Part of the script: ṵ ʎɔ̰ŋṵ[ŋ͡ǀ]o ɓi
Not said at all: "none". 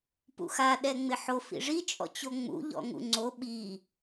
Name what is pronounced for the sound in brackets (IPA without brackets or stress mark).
ŋ͡ǀ